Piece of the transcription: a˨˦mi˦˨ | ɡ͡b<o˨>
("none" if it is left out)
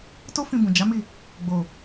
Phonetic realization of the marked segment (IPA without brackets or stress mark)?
o˨